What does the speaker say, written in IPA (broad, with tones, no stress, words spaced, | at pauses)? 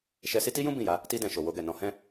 ʃɛ˧si˦ ti˦jũ˦ bĩ˦˨ja˨˦ | ti˧dɛ̃˨ ʃo˨wo˧ɡɛ˨nɔ̃˨˦ hɛ̃˦